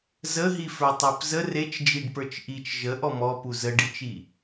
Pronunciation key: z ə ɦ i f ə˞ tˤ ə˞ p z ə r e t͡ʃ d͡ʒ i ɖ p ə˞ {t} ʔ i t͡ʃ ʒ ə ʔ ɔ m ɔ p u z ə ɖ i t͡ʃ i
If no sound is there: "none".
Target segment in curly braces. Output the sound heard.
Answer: t͡ʃ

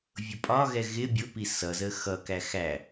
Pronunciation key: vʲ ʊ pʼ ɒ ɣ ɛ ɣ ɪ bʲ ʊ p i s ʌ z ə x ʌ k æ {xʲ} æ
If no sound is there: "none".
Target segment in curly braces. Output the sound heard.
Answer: x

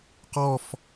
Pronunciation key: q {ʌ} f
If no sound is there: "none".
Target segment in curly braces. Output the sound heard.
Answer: ɔ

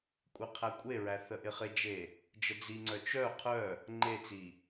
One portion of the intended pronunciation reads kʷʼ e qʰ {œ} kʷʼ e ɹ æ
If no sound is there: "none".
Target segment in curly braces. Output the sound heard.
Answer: æ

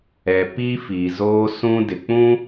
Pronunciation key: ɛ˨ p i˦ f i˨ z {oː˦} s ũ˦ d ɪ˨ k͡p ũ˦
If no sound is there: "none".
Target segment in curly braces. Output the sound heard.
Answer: oː˦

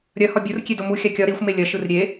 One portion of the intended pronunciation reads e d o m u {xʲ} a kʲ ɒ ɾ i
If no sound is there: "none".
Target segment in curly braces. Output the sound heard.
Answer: xʲ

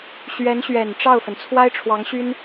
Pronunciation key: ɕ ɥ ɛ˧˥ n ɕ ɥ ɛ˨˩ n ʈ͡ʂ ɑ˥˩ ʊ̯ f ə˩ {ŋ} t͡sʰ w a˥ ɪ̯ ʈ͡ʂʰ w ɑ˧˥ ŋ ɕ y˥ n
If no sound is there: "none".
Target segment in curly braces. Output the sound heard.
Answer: n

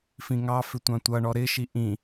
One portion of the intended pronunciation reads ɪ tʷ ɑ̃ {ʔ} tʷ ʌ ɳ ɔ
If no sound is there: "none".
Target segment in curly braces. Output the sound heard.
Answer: none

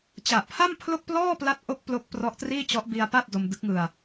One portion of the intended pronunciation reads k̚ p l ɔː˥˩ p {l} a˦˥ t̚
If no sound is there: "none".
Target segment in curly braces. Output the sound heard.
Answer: l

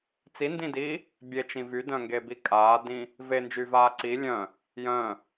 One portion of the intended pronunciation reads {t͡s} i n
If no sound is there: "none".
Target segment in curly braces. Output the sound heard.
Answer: t͡s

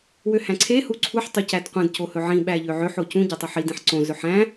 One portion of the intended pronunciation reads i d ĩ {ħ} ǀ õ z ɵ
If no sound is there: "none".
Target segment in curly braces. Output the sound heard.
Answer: ħ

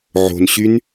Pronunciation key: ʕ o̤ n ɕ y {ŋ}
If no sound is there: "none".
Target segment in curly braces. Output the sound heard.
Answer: n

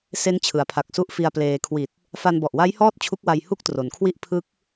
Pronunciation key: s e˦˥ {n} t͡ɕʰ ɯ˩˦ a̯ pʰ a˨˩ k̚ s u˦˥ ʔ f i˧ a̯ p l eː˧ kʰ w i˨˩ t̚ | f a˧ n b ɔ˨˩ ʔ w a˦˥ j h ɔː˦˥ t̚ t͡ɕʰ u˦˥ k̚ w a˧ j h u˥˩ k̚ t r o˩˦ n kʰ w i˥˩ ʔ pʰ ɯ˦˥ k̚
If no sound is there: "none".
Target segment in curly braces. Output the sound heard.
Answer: n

